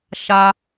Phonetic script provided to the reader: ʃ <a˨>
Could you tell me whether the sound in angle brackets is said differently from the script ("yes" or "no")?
yes